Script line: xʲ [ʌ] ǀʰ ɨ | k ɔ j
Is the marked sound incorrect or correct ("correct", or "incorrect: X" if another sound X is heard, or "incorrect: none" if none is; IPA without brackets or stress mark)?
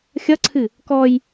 correct